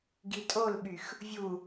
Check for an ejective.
present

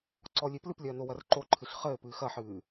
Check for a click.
present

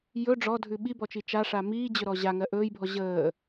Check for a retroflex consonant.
present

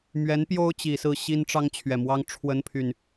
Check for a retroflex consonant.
present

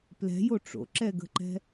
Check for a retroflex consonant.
present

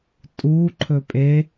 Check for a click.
present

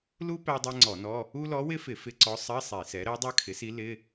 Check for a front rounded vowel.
absent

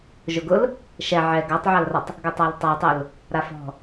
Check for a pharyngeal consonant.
present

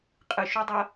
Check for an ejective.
present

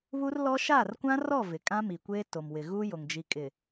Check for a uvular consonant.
absent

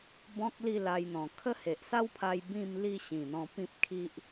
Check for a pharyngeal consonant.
absent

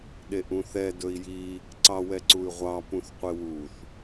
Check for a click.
present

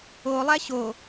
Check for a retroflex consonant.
absent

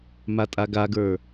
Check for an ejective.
present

